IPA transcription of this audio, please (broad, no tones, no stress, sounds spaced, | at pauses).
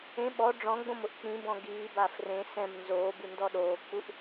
ẽ ɓ ɔ ɖ͡ʐ ɔ̃ ɡ͡b õ m ʊ ʔ k͡p ĩ b ɔ̃ ɡ iː b a f r ẽ s ɛ̃ m n z oː b u n d ɔ ɗ oː k͡p u ʔ